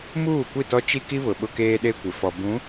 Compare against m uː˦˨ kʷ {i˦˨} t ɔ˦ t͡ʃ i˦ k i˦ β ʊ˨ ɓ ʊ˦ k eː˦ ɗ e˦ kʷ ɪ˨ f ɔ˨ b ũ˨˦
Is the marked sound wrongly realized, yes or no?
no